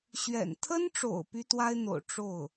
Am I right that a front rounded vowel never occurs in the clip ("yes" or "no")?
no